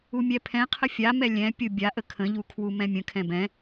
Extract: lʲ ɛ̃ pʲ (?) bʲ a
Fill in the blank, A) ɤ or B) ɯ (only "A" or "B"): B